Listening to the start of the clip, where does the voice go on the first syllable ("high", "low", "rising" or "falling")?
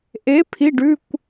rising